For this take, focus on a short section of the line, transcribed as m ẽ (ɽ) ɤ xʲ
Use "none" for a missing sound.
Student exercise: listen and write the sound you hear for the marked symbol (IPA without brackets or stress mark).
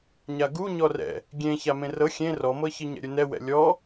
r